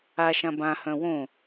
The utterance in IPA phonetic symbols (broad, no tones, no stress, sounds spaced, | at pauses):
a ʃ ã b ã h œ̃ w õ